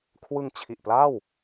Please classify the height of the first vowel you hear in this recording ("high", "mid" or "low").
high